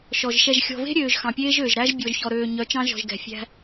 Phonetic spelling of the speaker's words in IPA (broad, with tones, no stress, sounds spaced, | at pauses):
ʃ ɔ˨ ʒ ʃ ɛ˨ ʒ xʲ ɔ̤˨ v e̤˦ ɾʲ øː˨ ʒ x ɑ̃˨ pʲ eː˦ ʒ øː˨ ʒ ɾ æ˦ ʒ bʲ ɔ˨ ʒ ç ɔ˨ ɾ øː˨ ɲ œ˨˦ t͡ʃ ɑ̃˦ ʒ ɔ̤˨ ʒ ɡ ɛ̤˨ fʲ æ̤˦